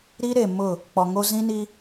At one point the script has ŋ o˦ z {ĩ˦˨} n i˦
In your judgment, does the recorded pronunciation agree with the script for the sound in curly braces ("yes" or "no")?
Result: no